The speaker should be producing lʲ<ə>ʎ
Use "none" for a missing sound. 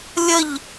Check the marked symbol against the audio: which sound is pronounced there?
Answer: ə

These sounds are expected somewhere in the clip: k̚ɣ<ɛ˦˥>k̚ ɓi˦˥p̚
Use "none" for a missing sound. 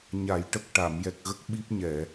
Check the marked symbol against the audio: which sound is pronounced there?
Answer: ə˦˥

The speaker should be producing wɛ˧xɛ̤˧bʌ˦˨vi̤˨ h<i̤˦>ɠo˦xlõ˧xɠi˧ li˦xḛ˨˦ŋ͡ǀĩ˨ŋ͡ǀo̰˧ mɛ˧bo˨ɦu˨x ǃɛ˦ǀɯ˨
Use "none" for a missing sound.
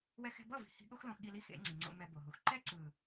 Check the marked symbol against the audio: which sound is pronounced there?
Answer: i̤˧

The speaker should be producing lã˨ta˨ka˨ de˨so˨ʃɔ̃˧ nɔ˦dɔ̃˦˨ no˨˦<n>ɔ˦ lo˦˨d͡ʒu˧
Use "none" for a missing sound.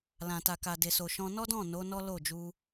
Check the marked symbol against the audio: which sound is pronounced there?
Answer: n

